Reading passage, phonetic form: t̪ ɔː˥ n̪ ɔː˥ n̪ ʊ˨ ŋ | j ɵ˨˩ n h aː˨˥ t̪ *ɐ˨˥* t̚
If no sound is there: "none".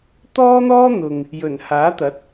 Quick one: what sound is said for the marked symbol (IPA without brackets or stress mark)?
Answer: ɐ˨˥